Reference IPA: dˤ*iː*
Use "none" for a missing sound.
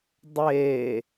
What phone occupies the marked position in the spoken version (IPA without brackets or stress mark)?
eː